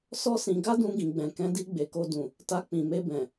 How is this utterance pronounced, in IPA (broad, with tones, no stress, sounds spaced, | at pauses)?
s ɔ˦ s ĩ˧ ɡ a˦ d ũ˧ ɡ ĩ˨ ɡ͡b ɛ̃˨ k ɛ̃˨˦ d i˧ ɡ͡b e˨ k o˧ d ũ˨ | t a˧ k͡p ĩ˨ m e˧ b ɛ̃˨